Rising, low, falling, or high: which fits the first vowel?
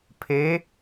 rising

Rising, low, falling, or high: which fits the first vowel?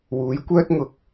rising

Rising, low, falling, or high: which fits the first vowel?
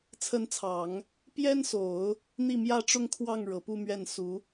rising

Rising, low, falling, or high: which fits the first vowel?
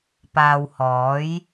low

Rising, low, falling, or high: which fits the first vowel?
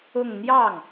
falling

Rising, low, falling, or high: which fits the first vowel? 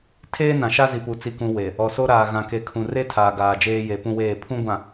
high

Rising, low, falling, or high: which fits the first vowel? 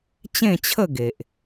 falling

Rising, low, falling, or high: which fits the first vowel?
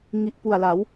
low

